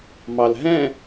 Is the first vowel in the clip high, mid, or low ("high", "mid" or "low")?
low